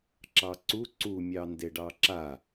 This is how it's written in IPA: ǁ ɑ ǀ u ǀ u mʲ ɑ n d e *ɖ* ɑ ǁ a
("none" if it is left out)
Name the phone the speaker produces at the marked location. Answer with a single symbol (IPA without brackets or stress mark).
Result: ɖ